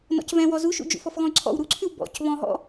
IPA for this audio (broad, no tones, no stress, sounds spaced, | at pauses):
n ɔ̰ c v ɛ̃ w ɔ z u ʃ ṵ d͡ʒ ṵ f ɔ f ɣ ɔ̃ y̯ ǀʰ ɔ̰ w ɾ u ǀʰ ʉ w b ɔ̰ c β ɔ̃ ɦ ɔ̰